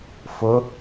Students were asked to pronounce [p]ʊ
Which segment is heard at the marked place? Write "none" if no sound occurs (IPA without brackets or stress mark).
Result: f